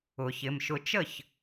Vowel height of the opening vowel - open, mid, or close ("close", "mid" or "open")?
close